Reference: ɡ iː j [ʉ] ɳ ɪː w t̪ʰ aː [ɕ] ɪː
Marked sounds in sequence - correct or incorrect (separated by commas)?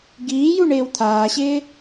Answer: incorrect, correct